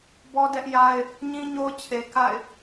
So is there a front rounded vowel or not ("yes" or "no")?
no